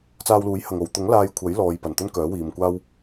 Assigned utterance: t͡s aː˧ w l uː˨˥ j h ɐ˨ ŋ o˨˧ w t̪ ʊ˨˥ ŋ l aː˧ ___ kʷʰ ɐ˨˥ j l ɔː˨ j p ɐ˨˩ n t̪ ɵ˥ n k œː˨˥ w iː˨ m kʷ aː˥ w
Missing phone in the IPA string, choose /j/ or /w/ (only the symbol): j